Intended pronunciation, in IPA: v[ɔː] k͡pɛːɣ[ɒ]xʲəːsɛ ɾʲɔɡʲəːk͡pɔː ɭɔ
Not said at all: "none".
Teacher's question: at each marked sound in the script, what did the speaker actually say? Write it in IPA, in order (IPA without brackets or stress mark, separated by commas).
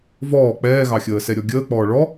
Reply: ɔː, ɑ